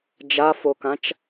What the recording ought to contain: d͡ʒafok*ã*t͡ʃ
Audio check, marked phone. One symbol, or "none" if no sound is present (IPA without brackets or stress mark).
ã